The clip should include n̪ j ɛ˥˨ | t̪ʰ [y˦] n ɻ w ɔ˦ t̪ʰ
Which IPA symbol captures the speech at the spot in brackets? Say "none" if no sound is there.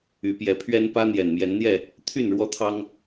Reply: y˥˨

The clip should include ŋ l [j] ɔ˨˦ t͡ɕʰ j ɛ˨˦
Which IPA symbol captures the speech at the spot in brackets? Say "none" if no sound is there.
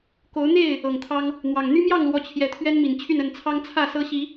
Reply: w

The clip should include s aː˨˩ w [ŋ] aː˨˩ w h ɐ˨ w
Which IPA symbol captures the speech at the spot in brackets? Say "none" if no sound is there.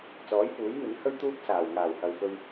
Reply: ŋ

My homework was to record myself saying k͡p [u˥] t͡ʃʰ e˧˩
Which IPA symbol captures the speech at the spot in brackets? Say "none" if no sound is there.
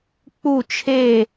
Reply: u˧˩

